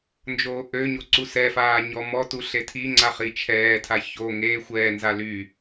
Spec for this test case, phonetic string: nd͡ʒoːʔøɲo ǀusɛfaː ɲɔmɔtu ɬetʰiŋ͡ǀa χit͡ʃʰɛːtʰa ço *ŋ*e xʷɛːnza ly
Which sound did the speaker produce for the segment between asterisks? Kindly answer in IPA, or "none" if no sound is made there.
ŋ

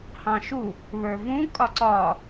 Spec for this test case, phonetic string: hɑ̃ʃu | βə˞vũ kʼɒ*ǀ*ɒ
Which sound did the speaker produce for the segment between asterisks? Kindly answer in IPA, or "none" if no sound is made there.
ǀ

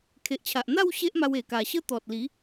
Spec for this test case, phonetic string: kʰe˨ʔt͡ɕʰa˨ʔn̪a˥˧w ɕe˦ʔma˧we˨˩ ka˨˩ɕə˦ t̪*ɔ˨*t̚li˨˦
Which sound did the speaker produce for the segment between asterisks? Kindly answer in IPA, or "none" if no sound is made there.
ɔ˨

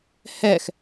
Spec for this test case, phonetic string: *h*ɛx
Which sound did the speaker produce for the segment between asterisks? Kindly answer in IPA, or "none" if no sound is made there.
h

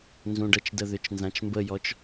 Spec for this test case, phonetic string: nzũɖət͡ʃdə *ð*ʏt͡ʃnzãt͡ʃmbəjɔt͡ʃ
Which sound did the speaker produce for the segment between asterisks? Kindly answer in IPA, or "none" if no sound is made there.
ð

